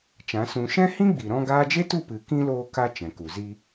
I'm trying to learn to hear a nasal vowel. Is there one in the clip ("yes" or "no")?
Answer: yes